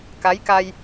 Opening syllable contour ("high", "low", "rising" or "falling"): rising